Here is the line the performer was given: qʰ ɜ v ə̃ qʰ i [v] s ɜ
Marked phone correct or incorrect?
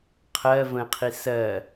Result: incorrect